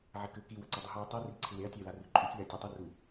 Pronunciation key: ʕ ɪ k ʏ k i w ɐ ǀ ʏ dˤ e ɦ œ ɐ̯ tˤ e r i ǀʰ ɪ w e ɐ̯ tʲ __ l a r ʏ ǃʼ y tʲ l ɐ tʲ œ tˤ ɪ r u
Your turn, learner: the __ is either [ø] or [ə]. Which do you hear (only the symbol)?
ø